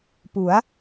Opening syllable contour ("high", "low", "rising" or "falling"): rising